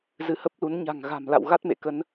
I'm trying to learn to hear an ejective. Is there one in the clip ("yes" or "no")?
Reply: no